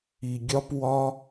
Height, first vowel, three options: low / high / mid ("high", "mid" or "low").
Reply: high